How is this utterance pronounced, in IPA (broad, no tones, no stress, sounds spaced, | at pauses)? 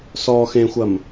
s ɔ x ẽ xʷ ɐ m